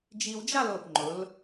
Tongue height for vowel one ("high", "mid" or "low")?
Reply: high